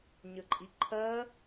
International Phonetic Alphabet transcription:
ɲəǃʼiǃʰɜ

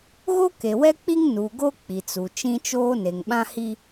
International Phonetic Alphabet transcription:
ɣo˦ke˨wɛ˦k͡pi˦ŋ nu˨ɡo˦ k͡pi˨t͡su˨ t͡ʃĩ˦t͡ʃoː˦ ne˨ŋɓã˦hi˦

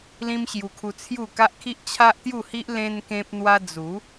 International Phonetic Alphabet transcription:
lĩ˦mɕju˧kʰu˧ t͡sʰju˥˧ ka˦ʔkʰi˦ʔ t͡ɕʰa˦ʔt̪ju˥˧hi˦ʔ lẽ˧n kẽ˦p̚n̪wa˦ d͡zu˨˦

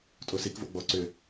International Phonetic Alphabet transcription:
tʼosik vo̰ɡ͡bɔ ǀʏ

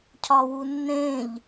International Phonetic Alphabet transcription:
cʰɒwunːẽʎ

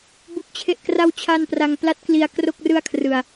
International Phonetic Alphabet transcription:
bu˦˥k̚t͡ɕʰe˥˩ʔ kra˥˩w t͡ɕʰa˥˩n pra˧ŋpla˦˥t̚kli˧a̯ kro˥˩k̚rɯ˥˩a̯kʰrɯ˧a̯

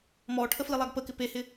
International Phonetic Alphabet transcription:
mɔːʈʰəflilˠaɡ pəkɪ pehɪ

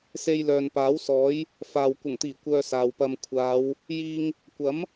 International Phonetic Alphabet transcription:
se˧jlœː˨npaː˨˥wsɔː˨˥j | faː˨w kʷɐ˨˩ŋt̪iː˨˩ kʷœː˧saː˨wpɐ˧m kʷʰaː˨˧w | jiː˧ŋ | kʷɐ˨˥m

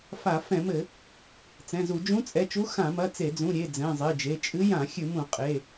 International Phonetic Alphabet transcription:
fa˧˩˧ fɛ̃˧˩˧mɘ˧˩˧ | t͡sɛ̃˩˧˩zu˧˩˧ d͡ʒũ˧˥t͡sʼɛ˩˧˩t͡ʃu˧˥ xã˧˩˧mɐ˩˧˩t͡se˧˩˧d͡zũ˩˧˩ ɾʲe˩˧˩ d͡zɛ̃˩˧˩zˤe˩˧˩d͡ʒe˩˧˩ t͡ʃʼɨ˧˥jã˧˩˧ xʲɨ˧˩˧mũ˧˩˧ qʼe˩˧˩

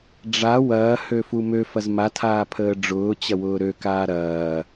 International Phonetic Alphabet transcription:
ɖ͡ʐa wɐːhøfu møfɐz matʰaːpʰəː ɖ͡ʐʊːt͡ɕɐwʊː ɾøkaː ɾɐː

